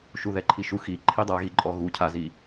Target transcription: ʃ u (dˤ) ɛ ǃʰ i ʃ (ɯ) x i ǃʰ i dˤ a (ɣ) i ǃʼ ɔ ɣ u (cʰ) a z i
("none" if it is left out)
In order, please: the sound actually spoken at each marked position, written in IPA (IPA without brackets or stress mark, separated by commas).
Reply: ð, u, ɣ, cʰ